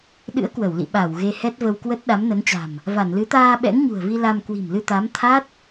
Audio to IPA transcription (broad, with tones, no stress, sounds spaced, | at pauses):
ɗ ɨ̰˧˥ ə̯ k w ə˧˩ w l ḭ˧˨ ɓ a˧˩ w ɣ e˧ h ɛ˦˥ t̚ v ə˧ w k w ə˦˥ t̚ ɗ a˨˦ m n ə˨˦ n t͡ɕ a̤˨˩ m | v a˧˩ n l ɨ˨˦ t̪ aː˧ ɓ ɛ̰˧˥ ŋ ɲ ṳ˨˩ ə̯ v i˧ l a˧ m k w i̤˨˩ m l ɨ˧ t̪ a˨˦ m t̪ʰ a˦˥ t̚